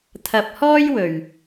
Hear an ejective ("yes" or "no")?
no